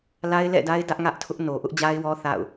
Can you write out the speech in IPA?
l a˦ ɪ̯ l ɛ̰˦˨ d a˦ ɪ̯ d ä˦ ʔ ŋ ä˦ ʔ tʰ ʊ˦ ʔ n o˨ ʔ ʊ˦ ʔ d͡ʑ a˦ ɪ̯ w ɔ˦ θ a̰˦˨ ʊ̯

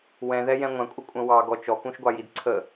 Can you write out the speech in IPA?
w ɛ̃ ð ɛ j ɛ̃ ŋʷ æ̃ kʷʼ ʌ kʷʼ ə̃ w ɑ ɡ ɔ t͡ʃ ɔ k ũ ʃ ɡʷ ɑ j i d ǀʰ ə

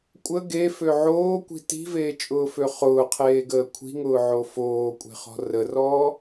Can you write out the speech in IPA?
kʷʼ ə ɡ e f ø ʕ oː kʷ i̤ t i̤ v eː t͡ʃʼ ʊː f ø χ ʊː qʰ eː ɡ əː kʷʰ i̤ ŋ ʊː ʕ o f oː kʷʼ e̤ χ ɔ̤ r ə r ɔː

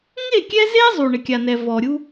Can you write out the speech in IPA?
ŋ e˦˨ kʲ ɛ˦ z e˦ zˤ u˨ ɳ ɪ˨ kʲ a˨ n ɛ˨ v ɔ˨ ɾʲ u˦

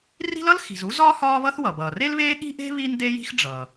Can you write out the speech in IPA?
r i̤˥ l ʌ˥ l x i̤˩ z u˥ z ɒː˥ h ɒː˥ β ʌ˥ θ w ʌ˩ b ʌː˩ r e˥ l β eː˥ ɠ i̤˥ ʔ e̤˥ β iː˥ n d e˥ j i̤˥ x ɖ͡ʐ ʌː˩

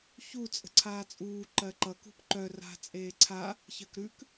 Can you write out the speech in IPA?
ç u t͡sʼ ə̤ ǀʰ aː t͡sʼ uː ǃ ɜ ǃ ʌ k ṳ p ǃ œ r a̤ t͡sʼ eː ǀʰ a | ç ɜ k ɾ ʉ k

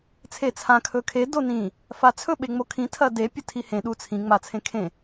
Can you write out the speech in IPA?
t͡sʰ e t͡sʰ ã kʰ ɵ kʰ e d o n ĩ | f a t͡sʰ ɵ ɓ e ŋ͡m o kʰ ĩ tʰ ɐ d e pʲ ɵ tʰ i h ẽ ɗ u t͡sʰ ĩ ŋ͡m a t͡sʰ ẽ kʰ ẽ

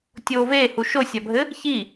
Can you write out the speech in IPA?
tʲ oː v eː h u ʃ o sʲ a bʱ ɘ | ç i

